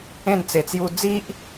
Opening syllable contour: falling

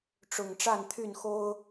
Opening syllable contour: low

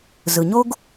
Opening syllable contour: low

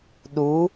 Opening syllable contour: rising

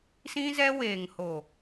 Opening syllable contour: high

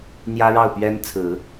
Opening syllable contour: high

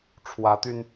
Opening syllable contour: rising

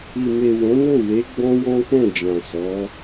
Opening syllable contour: low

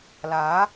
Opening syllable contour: rising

